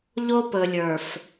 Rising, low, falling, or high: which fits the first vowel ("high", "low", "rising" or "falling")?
high